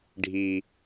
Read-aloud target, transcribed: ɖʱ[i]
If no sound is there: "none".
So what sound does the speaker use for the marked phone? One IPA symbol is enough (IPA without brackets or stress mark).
i